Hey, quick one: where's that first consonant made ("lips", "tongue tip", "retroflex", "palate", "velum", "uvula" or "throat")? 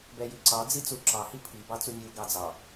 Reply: lips